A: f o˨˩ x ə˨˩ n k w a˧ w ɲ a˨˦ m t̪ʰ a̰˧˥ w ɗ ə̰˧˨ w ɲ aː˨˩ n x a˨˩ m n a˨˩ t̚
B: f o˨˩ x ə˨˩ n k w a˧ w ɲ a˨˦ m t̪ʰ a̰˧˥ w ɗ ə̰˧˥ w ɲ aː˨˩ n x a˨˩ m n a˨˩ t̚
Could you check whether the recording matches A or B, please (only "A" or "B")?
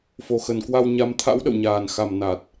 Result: A